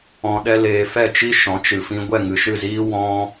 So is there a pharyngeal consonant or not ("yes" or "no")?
no